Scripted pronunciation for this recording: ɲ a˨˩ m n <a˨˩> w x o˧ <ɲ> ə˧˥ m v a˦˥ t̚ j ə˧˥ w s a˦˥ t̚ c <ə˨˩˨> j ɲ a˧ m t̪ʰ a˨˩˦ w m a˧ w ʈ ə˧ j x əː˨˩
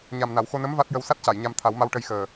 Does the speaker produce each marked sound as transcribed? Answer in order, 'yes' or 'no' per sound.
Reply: no, no, no

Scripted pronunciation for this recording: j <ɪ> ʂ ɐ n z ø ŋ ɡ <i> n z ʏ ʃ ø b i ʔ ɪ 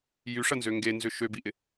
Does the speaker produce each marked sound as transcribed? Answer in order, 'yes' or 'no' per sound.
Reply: no, no

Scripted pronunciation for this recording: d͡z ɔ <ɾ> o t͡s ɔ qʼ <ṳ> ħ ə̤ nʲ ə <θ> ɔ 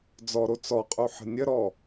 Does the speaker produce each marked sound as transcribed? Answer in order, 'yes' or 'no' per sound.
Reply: yes, no, no

